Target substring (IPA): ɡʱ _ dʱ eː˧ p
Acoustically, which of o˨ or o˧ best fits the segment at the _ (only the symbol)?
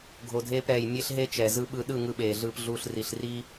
o˨